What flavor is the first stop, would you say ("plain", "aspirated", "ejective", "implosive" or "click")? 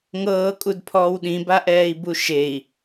ejective